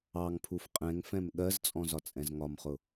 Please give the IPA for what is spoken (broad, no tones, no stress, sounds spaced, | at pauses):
ɑ ŋ pʰ u f qʼ ɛ̃ ŋ f ɛ̃ m ɠ ɜ z t͡sʼ ɔ̃ z ɒ t͡sʼ ɛ̃ z ŋ ɒ m χ ʊ